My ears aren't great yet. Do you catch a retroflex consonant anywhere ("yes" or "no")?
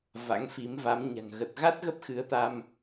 no